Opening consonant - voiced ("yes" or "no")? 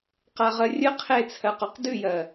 no